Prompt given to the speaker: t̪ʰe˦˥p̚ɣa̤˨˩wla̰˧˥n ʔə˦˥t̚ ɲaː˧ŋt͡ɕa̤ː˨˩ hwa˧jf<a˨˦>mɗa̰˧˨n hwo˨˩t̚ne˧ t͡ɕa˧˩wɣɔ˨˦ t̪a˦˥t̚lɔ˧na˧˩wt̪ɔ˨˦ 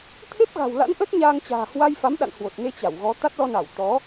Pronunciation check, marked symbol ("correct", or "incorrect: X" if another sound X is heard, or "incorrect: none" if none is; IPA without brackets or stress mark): correct